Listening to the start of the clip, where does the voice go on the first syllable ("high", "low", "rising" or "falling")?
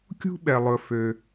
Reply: high